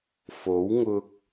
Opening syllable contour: rising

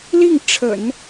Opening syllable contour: falling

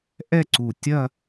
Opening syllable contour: falling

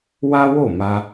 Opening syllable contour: high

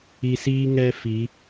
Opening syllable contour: low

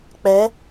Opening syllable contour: rising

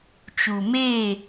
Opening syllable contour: low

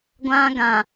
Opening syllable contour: high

